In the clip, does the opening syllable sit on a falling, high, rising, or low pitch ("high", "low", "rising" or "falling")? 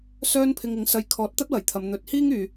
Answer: high